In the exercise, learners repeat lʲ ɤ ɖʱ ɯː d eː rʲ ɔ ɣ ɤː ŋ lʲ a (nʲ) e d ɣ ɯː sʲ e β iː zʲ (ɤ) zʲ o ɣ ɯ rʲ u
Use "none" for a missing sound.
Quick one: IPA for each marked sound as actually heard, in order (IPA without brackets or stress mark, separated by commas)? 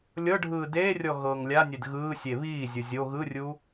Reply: nʲ, ɯ